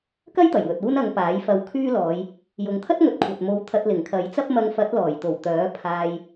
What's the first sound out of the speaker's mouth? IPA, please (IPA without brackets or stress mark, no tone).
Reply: k